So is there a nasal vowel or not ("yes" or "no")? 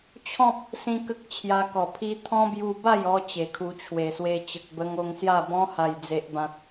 yes